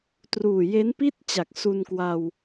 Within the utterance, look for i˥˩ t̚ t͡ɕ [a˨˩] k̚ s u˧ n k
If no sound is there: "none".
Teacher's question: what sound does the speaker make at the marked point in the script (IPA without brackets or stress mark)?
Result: a˨˩